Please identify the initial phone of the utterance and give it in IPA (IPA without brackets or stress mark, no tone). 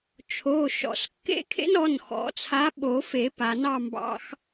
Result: t͡ʃʰ